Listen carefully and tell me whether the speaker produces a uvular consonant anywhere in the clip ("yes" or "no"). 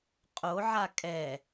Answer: yes